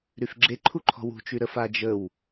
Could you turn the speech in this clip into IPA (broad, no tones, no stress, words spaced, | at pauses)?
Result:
ɾyfɡ͡ǁeǃʰuǃʰɔ̤ wṳt͡ʃy ɾəfa d͡ʒəw